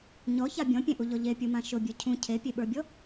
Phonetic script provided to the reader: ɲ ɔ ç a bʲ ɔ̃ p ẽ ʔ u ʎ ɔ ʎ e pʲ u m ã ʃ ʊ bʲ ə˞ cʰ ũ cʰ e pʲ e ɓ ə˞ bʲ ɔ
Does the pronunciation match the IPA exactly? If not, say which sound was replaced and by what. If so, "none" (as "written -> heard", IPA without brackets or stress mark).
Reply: p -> pʲ